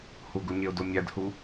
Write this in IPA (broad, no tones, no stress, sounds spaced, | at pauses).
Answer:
h u ɡ u ɲ e ʊ̯ d o mʲ æ d h u